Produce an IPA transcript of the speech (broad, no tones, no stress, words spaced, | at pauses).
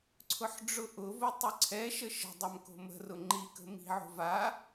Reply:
ǀʰʊħɖ͡ʐʊʔʊvʊ tˤʊǀʰɛʃə ʃə̤ dˤamko̤mə̤rʊ ŋ͡ǃikə̤ mi̤ʕo̤ va